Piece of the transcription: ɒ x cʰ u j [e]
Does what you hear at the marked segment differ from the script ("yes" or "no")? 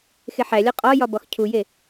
no